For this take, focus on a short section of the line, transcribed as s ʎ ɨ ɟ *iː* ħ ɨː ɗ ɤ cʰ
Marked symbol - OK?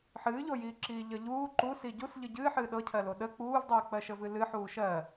no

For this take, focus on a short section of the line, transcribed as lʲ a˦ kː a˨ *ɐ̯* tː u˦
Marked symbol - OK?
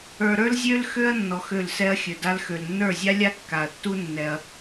yes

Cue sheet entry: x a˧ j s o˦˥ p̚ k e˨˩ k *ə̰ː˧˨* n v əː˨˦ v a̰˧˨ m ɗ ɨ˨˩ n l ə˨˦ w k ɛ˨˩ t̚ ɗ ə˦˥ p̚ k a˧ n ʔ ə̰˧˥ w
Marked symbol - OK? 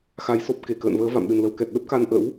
yes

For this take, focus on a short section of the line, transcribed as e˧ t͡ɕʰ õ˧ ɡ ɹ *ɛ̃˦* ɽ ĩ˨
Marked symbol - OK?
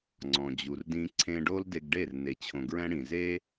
yes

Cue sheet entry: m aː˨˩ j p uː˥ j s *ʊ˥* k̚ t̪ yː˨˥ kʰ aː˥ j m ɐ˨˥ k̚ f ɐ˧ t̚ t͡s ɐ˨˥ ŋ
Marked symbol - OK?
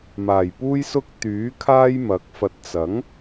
yes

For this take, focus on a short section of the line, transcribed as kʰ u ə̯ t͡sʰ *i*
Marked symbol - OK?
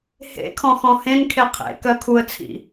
no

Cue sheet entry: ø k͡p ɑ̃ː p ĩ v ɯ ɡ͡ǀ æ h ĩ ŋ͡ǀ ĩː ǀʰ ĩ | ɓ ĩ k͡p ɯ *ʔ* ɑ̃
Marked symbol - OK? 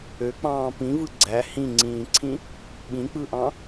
yes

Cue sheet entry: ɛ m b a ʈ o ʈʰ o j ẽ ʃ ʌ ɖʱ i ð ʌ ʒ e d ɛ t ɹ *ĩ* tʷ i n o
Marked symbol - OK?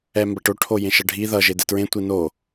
no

